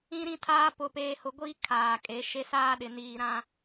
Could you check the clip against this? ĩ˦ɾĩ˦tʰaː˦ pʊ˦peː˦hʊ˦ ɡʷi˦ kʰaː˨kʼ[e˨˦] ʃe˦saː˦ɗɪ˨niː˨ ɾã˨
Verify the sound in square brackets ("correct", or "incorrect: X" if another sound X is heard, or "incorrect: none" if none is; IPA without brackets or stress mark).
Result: correct